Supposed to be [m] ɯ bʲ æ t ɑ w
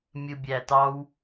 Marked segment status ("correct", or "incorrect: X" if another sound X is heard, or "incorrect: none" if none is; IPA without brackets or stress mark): incorrect: mʲ